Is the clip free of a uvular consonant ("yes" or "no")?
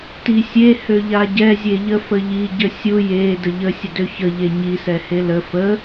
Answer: yes